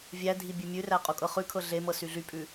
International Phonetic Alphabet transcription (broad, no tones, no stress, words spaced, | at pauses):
vʲædʱi bʲʉmʲʉræ qʼukʼɤχʉkʰɤ ɮemɤ syɮypʼʉ